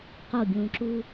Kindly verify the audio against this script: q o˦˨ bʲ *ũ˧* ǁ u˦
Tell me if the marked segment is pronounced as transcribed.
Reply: yes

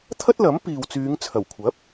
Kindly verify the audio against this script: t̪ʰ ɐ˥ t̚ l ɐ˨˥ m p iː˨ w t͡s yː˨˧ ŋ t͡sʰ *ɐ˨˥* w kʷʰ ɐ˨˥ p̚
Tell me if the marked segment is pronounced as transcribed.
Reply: no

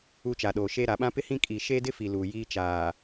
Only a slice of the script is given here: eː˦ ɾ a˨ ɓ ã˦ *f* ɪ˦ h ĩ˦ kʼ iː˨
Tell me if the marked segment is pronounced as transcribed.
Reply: no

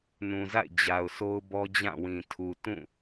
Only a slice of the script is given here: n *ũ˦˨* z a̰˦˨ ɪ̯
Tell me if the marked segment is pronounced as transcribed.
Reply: no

